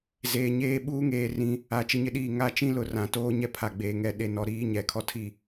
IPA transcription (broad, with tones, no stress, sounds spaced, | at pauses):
z eː˨ ɲ eː˦ ɓ uː˦ ŋ eː˨ r ĩ˨˦ | a˨ t͡ʃ ɪ˦ ɲ ɪ˦ ɗ iː˦˨ ŋ a˦ t͡ʃ ĩ˦ l ʊ˨ r ã˨ t oː˦ ɲ ɛ˦ pʰ a˨ ɡ͡b eː˨ ŋ ɛ˨ ɗ e˨ n ɔ˨ ɾ iː˦ ɲ ɛ˨ kʰ ɔ˦ tʰ i˦˨